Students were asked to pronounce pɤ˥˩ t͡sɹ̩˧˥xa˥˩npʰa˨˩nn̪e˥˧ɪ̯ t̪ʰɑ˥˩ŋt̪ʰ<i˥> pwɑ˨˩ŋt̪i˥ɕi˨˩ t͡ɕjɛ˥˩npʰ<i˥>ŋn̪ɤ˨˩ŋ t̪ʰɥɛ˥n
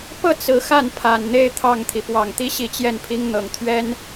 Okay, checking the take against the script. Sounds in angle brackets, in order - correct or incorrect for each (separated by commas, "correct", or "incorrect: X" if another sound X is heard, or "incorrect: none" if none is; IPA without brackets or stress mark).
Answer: incorrect: i˩, correct